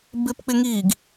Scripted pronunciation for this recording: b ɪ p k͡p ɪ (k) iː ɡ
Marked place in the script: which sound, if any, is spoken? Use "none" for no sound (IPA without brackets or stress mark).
ŋ